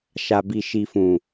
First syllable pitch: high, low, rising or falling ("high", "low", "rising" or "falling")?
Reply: low